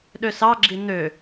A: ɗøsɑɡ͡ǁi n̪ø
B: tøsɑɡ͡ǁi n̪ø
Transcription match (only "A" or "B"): A